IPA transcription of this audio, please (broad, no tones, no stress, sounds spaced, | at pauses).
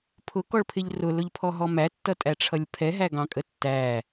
pʰ ʊ k ɔ ɭ pʰ ɪ ʎ r ʊ l ʊ ʎ pʰ ɔ ɦ ɔ m æ tː ʌ tʼ æ ʈ͡ʂʰ ʌ lʲ pʰ ɛ ɦ æ ɡ ɑ̃ kʼ ə tː æ